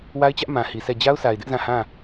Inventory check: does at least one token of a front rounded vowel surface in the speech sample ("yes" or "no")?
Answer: no